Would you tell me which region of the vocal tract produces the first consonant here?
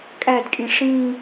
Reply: velum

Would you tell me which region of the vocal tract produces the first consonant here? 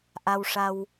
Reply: throat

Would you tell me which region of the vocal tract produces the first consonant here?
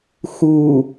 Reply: velum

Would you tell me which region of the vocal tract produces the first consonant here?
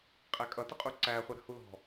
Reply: uvula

